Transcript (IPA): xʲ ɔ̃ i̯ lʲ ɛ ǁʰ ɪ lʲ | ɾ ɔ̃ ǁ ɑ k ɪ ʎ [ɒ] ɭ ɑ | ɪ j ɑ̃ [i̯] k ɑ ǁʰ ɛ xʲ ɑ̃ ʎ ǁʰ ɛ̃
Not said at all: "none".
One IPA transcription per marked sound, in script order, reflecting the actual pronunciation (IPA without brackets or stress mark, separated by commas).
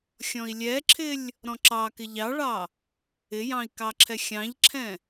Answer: ɑ, i̯